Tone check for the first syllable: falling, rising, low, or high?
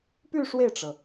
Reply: falling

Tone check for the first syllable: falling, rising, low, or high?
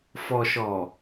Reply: low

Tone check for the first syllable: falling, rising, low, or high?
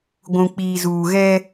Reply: low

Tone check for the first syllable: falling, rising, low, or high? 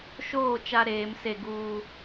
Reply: falling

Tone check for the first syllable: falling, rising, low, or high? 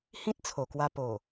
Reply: high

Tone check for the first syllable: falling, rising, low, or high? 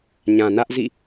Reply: low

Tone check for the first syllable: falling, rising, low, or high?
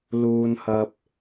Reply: high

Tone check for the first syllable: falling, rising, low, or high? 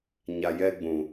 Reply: low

